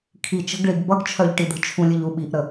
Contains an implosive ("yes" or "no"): yes